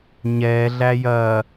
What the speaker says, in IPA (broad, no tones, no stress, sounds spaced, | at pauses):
ɲ ɛ ɮ æ j ɐ